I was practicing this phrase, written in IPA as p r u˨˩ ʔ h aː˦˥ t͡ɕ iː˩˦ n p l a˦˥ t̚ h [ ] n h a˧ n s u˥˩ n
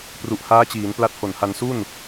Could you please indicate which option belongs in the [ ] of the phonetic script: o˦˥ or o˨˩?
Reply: o˨˩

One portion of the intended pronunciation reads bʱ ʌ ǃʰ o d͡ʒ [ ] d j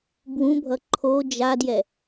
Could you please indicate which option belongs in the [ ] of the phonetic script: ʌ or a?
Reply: a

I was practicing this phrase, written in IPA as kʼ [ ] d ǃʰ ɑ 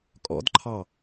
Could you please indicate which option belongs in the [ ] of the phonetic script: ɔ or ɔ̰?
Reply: ɔ̰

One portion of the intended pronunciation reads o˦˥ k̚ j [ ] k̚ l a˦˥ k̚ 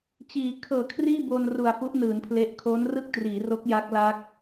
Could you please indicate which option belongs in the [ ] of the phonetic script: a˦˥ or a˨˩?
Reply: a˦˥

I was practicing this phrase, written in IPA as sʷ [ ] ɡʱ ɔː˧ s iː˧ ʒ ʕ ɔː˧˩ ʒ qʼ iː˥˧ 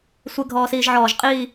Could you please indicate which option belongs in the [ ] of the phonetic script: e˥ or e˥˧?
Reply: e˥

